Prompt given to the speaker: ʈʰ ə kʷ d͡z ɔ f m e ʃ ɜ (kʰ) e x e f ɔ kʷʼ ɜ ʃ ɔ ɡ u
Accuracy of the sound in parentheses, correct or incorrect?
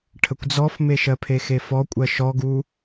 incorrect